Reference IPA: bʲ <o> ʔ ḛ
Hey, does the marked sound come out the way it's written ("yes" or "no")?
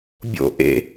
no